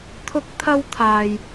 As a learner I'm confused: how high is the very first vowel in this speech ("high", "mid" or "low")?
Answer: high